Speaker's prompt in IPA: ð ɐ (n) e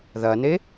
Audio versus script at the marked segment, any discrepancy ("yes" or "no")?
no